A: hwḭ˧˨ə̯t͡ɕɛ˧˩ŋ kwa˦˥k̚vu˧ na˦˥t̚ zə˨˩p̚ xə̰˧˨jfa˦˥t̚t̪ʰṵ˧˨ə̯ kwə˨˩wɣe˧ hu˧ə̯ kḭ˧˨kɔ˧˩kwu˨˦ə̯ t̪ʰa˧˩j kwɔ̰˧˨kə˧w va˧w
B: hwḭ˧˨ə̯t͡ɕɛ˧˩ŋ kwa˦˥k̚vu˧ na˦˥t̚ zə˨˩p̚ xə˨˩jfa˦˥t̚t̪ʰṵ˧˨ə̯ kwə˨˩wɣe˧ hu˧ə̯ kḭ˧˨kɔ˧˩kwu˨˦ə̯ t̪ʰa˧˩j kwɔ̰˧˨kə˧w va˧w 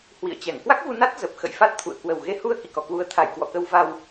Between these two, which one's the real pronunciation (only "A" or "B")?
A